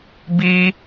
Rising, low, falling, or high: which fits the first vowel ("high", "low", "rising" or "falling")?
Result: high